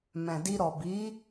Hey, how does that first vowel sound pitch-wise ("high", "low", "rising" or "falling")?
low